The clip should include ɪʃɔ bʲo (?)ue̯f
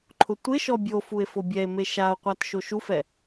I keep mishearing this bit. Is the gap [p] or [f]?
f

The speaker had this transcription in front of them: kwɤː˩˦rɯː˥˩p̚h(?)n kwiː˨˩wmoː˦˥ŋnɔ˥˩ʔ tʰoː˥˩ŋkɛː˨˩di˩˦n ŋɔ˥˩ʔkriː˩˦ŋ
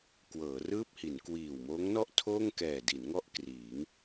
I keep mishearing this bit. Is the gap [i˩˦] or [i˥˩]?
i˩˦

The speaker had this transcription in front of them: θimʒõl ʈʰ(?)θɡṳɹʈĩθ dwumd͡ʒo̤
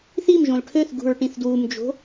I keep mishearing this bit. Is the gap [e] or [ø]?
ø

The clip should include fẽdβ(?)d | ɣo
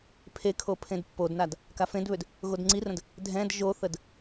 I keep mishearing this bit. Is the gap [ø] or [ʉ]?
ø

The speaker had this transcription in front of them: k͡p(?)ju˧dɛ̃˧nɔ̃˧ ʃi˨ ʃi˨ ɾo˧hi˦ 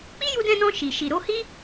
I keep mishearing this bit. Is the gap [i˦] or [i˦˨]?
i˦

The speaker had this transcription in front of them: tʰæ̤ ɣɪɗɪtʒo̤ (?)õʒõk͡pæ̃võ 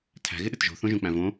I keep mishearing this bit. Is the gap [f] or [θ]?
θ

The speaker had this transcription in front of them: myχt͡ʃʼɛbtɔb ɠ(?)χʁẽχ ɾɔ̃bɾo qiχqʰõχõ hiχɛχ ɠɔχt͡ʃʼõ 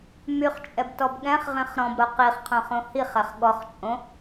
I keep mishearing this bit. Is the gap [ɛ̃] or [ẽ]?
ɛ̃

